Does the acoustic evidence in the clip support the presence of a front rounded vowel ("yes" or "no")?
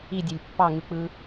yes